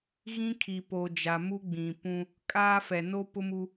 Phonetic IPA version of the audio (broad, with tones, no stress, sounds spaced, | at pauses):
ɣ ĩ˦ kʰ i˨ p o˨ d͡ʒ a˨ m u˦ ɡ͡b ĩ˨ p ũ˦ | kʼ aː˦ f ɛ˨ n o˦ p ʊ˦ m u˦